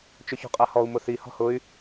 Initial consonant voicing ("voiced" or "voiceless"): voiceless